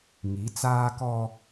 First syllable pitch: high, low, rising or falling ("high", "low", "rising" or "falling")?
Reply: rising